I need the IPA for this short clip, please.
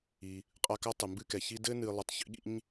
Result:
i˩ | qʼa˦ka˥ tˤɨ˩mbɨ˦kɛ˩ çi˦ dɘ˥nɨ˨ lˠɨ˨tˤçḭ˥ɠḭ˥ɲ

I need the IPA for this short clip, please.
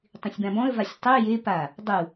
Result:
tˤĩsʲbãbɔ̃ə̯ vasʲtˤɤ je pa | dˤu

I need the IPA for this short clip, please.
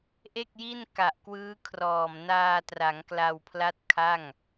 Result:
ʔe˥˩k̚ji˥˩n ka˨˩ʔ kwɯː˦˥kʰrɔː˨˩m naː˧tra˩˦ŋ kla˧wpʰla˦˥t̚ kʰa˥˩ŋ

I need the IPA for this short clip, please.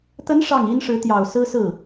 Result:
t̪ə˧˥n ʂɑ˥˩ŋi˥nʂɻ̩˧˥t̪jɑ˨˩ʊ̯ sɹ̩˥sɹ̩˥˩

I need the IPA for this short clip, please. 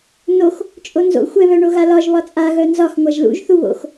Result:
nox | t͡ʃʼonzo̰ xʷɛ βœɳoɣalɒʒ βɒt͡sʼa ɣœnzɒx ŋʷaʒlṵʒ θuβo̰x

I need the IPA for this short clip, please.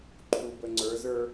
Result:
ǃʰub əŋ͡ǀə˞zə˞

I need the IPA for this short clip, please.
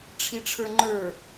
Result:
ʈ͡ʂʰiʈ͡ʂʰə˞ŋ͡ǃə˞

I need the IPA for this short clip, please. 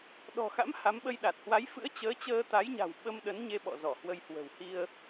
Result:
ɗɔ̤˨˩xa̰˧˥m ha˨˦mɓə˧jɗa˨˩t̚ hwa˨˦jfɨ̰˧˥ə̯ t͡ɕəː˨˦t͡ɕəː˧t̪a˨˦jɲa̤˨˩w ɓə˧mɗə˨˦n ɲe˧ɓɔ̰˧˨ zɔ˧˩hwə˧j hwə̤˨˩whi˧ə̯

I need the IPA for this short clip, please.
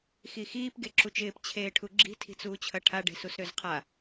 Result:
xixiːp ɡeǁut͡ʃɪːp t͡ɕʰeːʈʰuɡ͡ǁi̤ tʰi̤t͡suːt͡ɕʰɐʈʰa ɖe̤susɾøzqʰa

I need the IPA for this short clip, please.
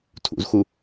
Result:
tʰṵzxu

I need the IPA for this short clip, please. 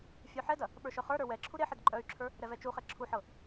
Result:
fʲœħɛdɐ | ɓə˞ʃœχə˞ɾə˞ wɛ ǁʰuɾeħɛd ǃʼœy̯ǁʰə˞ | ɾɛvɛt͡ʃuχɛ ǁʰuħɤ

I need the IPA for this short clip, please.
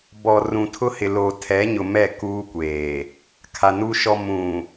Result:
bɔ˨rũ˨tʰʊ˦ hɪ˨ loː˨ tʰɛ˨˦ɲʊ˨ mɛ˦˨ kuː˦kʷeː˨ | kʰa˨ nuː˨ʃɔ˨ mũ˨

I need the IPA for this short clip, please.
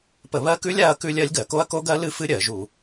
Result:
pə˧˩˧βɜ˦˥kʉ˦˥lʲ a˦˥ɐ̯kʉ˦˥ lʲɜ˦˥lʲɡɜ˧˩˧ko˦˥ɐ̯ ko˦˥ɡɜ˦˥lɨ˦˥fɨ˦˥ ɾʲɜ˧˩˧ʒu˧˩˧

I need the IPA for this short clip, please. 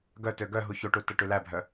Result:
ɡœtø ɡœ ɦuçoʈu tɛʈʉlæbʱœ

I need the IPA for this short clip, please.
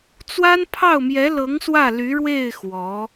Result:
t͡swa˥npʰɑ˥˩ʊ̯mjɛ˧˥lɤ˧˥ŋ swä˥˩ly˧˥ɻwe˥˩ɪ̯ xwɔ˧˥

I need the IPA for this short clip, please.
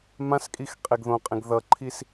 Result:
mãskʼix qʼeɡðõqʼẽɡ ðʌǃʰis

